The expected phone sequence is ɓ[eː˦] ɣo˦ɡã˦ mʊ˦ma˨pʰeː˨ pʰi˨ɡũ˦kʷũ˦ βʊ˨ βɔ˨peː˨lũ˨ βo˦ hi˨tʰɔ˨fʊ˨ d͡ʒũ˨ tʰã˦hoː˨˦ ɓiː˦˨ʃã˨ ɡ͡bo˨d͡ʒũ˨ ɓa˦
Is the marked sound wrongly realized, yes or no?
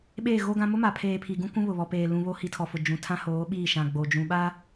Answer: yes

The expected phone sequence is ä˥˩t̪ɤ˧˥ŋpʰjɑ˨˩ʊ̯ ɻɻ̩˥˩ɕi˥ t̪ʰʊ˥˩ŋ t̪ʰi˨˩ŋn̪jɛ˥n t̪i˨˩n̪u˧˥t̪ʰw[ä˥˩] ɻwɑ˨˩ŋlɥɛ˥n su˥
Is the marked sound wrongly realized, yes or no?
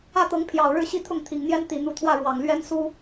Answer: no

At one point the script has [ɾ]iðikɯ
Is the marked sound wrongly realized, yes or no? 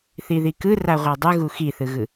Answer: yes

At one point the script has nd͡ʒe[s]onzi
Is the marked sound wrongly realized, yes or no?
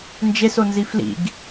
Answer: no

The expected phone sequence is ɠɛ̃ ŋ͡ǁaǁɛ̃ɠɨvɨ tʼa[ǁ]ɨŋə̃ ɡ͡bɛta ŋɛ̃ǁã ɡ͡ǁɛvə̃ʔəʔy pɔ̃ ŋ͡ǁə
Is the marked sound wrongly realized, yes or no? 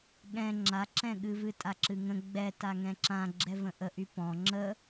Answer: no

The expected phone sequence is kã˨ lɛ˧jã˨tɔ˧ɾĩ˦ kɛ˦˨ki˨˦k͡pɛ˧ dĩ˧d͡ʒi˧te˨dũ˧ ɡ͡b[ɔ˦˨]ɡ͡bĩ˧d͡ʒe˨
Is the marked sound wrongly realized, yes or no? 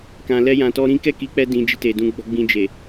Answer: yes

